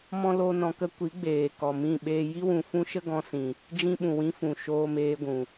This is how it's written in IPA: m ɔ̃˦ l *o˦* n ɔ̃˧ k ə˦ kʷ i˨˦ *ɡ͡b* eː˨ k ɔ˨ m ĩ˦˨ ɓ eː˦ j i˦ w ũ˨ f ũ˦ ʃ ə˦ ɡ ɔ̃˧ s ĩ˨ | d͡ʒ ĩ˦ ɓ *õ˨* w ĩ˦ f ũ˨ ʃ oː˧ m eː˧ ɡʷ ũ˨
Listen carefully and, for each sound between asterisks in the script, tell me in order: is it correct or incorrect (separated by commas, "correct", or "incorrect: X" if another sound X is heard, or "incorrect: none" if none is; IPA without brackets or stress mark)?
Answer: correct, correct, incorrect: ũ˨